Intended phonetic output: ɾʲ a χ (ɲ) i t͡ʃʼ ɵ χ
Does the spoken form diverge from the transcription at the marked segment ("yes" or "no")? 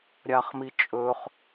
yes